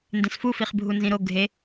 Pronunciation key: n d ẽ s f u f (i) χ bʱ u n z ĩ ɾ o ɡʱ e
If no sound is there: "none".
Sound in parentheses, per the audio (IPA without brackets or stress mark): i